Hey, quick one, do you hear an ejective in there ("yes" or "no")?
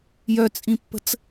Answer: yes